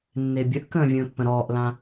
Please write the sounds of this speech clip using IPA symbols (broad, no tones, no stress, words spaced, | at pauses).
nːebʲəʔkə̃ː vʲə̃ːpːə̃ɾɔːʔlã